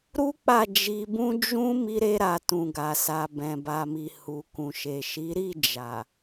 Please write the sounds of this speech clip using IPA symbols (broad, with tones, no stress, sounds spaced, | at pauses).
ɾ u˦ k͡p a˦˨ d͡ʒ i˧ b ũ˦ d͡ʒ ũ˦ m i˦ ɾ e˦ ɾ a˧ t ũ˨ ɡ a˨ s a˨ b ɛ̃˨ b a˨ m i˨ h u˨ k ũ˨ ʃ e˨ ʃ i˨˦ ɾ i˦˨ d͡ʒ a˨